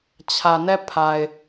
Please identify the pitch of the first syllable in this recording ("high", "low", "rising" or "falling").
low